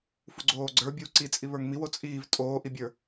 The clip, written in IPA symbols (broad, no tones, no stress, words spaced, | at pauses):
fuɡ͡ǀoːɡ͡ǀə˞bʲuː ǀit͡sʼi βə˞ŋmiw ot͡sʼiːv tʼoːʔibʲə˞